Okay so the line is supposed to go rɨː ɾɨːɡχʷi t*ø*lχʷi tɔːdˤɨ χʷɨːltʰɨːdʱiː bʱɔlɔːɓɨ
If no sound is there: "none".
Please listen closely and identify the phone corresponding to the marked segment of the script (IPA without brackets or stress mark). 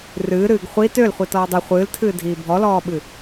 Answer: ø